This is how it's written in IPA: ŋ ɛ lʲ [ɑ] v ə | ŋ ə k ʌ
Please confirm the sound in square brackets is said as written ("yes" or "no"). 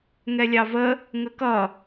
yes